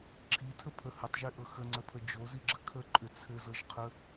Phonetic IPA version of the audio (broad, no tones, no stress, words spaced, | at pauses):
ǁʰitʰəpʰə hətˤʒiʔɤ xəŋ͡ǀəpʰə d͡ʒoziɡ͡ǁə kʰəǃʼʏ t͡sʰɘzɤʒqʰə